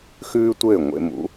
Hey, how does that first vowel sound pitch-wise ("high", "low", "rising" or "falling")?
high